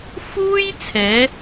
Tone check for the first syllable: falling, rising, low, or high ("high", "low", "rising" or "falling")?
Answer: high